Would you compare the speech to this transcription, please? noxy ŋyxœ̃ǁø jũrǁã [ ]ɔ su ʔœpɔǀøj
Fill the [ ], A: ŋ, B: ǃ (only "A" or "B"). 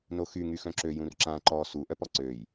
B